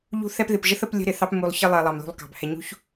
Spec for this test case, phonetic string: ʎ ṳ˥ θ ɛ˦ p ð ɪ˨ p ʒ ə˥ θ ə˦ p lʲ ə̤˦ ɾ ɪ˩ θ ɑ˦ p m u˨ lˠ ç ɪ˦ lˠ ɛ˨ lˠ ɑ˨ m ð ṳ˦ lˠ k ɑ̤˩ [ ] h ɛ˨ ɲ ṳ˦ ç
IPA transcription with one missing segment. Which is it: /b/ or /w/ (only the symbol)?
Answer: b